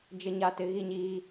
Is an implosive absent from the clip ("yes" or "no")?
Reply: yes